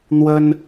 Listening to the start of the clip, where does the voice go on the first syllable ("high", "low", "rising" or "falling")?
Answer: high